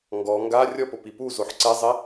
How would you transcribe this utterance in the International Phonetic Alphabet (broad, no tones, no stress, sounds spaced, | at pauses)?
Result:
ŋ ɡ ɔ ŋ ɡ a rʲ ɔ p o p i p u z o ħ ǀ ɛ zˤ e